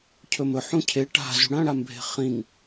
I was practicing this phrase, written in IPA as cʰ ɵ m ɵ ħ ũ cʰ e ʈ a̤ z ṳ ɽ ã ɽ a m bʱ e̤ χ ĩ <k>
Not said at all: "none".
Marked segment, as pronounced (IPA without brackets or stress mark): ŋ